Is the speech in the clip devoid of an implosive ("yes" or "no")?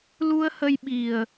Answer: no